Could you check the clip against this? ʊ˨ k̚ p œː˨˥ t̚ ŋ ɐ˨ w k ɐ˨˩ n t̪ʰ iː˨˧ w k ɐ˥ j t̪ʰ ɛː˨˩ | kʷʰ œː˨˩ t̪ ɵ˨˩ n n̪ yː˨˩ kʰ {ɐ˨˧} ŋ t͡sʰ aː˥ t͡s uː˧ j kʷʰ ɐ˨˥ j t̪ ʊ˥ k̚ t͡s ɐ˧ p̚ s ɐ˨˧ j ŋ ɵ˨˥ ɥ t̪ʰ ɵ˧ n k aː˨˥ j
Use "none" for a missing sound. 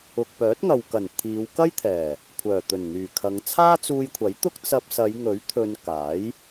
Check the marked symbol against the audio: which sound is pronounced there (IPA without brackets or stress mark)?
ɐ˨˧